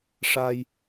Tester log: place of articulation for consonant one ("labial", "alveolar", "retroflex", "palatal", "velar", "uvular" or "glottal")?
retroflex